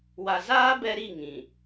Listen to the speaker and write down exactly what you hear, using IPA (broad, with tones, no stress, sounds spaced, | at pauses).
w a˨ z aː˦ b ɛ˦ ɾ i˦˨ ŋ ĩ˨